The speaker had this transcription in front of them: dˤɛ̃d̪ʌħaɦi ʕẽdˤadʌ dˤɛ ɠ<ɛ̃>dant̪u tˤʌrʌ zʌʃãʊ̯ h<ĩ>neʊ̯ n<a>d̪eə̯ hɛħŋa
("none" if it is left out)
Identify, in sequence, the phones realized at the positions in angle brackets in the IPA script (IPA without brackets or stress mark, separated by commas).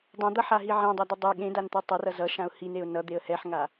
ẽ, i, ʌ